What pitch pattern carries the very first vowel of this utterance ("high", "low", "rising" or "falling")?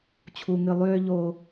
high